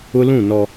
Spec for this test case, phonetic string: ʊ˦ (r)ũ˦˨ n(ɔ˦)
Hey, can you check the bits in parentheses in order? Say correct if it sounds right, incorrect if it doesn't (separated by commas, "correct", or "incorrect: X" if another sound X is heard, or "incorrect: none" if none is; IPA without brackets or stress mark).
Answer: incorrect: l, correct